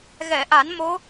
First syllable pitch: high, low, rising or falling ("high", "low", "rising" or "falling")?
low